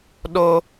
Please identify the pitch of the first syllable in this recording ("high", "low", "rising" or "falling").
high